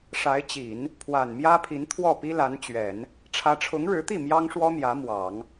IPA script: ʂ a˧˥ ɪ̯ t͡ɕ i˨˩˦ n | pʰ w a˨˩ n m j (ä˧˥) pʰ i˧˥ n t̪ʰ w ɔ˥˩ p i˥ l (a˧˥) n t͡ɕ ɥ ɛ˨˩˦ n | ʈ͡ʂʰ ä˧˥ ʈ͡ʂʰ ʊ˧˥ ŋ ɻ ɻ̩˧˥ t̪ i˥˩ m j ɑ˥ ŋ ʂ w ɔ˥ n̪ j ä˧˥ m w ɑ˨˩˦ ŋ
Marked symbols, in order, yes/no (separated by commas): no, yes